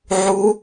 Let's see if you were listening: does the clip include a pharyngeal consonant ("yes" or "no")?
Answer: yes